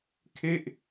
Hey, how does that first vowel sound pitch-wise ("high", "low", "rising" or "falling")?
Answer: falling